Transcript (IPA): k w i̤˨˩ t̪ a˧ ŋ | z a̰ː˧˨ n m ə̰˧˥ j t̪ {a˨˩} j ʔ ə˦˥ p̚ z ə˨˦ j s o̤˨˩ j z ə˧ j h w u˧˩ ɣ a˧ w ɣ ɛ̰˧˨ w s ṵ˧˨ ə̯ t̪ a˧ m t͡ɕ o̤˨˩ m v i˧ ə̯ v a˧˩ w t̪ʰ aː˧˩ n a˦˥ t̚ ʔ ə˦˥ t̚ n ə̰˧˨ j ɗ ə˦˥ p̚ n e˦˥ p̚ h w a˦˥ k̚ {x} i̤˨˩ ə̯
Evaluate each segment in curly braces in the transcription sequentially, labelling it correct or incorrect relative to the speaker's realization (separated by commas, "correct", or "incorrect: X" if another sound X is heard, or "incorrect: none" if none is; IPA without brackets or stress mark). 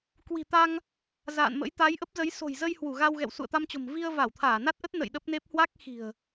incorrect: a˨˦, correct